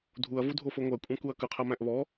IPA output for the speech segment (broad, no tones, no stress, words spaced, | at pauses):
dʱuɐ̯vudʱofo ŋʷækʷʼæ̃kuɐ̯ kɯqʰæmæ̃ʔ βɔ